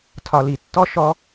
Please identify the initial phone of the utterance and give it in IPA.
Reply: tʰ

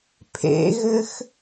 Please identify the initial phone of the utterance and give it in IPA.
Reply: pʰ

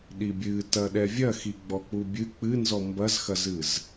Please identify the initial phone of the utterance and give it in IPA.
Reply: ɗ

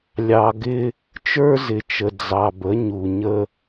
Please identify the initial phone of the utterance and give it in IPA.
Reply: lʲ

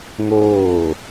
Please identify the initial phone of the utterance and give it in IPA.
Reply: ŋ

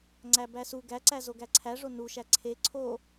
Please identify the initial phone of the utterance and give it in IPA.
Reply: ŋ͡ǀ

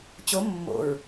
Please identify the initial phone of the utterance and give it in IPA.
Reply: t͡ɕ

